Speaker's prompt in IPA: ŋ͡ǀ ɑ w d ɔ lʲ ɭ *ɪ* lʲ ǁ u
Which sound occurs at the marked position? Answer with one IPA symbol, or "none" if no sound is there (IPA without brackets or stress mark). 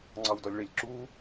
ɪ